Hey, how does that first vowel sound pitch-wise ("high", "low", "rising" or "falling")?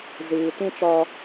low